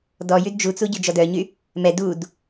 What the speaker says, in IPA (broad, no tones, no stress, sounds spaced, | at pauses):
d ɔ j y d d͡ʒ u t͡s u ɟ y d͡ʒ ɔ d œ ɲ y | m ɛ d u d